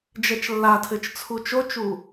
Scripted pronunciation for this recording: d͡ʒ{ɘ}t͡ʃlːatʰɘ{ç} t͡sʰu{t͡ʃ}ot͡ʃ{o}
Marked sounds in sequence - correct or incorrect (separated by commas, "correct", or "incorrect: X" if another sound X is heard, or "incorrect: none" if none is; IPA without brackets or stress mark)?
incorrect: ɛ, incorrect: t͡ʃ, correct, incorrect: u